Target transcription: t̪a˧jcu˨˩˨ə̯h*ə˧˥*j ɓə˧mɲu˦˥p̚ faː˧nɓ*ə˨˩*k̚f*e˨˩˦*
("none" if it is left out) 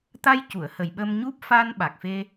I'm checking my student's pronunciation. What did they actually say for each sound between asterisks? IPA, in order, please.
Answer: ə˨˩, a˨˩, e˧

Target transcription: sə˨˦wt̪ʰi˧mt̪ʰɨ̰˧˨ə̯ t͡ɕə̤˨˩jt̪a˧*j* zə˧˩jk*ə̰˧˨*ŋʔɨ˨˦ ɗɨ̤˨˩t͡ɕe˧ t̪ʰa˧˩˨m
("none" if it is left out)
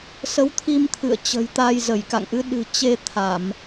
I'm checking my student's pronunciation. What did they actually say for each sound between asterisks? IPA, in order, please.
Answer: j, a̰˧˨

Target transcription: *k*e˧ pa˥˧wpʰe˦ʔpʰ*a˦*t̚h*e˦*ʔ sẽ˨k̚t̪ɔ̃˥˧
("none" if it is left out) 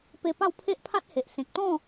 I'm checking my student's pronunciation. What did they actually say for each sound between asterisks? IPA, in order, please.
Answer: p, a˦, e˨

